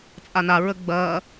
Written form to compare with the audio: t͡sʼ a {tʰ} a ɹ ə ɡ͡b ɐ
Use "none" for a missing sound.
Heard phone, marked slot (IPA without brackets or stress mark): n